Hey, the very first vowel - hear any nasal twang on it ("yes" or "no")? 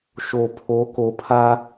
no